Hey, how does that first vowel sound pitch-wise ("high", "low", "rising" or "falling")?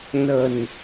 low